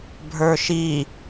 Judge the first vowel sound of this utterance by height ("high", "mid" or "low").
mid